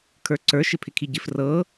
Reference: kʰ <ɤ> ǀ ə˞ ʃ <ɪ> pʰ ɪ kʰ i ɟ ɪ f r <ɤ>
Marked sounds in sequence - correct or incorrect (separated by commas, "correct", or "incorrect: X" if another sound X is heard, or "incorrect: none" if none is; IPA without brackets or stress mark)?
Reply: incorrect: ə˞, correct, correct